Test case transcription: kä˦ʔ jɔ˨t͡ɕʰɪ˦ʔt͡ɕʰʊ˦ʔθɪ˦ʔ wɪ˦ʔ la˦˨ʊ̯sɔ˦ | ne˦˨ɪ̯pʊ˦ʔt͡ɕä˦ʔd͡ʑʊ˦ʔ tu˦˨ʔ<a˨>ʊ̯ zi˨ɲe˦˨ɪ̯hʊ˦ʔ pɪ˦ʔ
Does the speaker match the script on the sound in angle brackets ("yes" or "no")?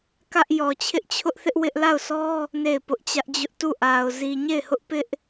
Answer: yes